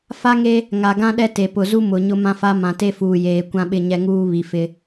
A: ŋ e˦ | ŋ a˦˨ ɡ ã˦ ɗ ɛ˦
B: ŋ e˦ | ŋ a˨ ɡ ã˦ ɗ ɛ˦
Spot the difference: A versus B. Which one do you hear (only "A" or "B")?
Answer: B